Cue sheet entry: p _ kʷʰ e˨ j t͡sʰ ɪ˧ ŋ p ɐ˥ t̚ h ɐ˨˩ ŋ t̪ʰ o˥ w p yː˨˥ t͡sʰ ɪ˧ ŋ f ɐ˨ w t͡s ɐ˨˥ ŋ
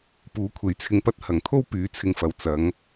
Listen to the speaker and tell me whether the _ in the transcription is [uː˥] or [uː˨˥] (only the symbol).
uː˨˥